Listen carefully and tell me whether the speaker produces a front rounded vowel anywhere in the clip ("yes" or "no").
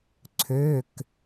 yes